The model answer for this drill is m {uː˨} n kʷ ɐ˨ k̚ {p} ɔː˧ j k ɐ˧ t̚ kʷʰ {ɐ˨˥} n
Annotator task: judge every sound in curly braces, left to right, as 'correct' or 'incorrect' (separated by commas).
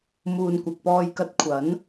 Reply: correct, correct, correct